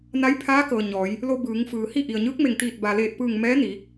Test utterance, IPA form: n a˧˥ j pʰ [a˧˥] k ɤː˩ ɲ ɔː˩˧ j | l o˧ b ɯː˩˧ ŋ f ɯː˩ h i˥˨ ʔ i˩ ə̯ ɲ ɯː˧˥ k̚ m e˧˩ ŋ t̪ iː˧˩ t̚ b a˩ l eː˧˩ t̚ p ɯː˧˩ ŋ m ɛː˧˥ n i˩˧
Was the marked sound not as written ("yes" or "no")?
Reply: yes